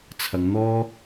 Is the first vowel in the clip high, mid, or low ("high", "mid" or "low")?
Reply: low